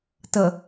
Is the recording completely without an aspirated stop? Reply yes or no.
yes